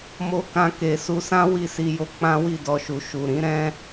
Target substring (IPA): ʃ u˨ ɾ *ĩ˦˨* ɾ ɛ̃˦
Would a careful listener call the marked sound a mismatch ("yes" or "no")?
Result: yes